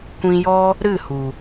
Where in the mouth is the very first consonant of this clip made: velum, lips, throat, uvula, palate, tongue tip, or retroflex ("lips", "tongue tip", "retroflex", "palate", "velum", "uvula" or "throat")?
velum